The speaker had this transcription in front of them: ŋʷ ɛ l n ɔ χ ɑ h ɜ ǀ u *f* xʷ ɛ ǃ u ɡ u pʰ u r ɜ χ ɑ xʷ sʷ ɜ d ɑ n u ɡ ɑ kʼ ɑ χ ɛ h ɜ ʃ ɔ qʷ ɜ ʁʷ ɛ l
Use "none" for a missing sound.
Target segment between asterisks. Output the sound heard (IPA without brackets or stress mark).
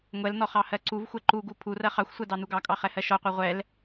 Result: v